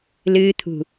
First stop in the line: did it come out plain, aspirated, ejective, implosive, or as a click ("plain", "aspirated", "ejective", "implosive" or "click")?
aspirated